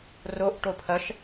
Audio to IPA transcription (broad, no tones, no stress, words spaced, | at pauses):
roʔ ʈopʰɐʃ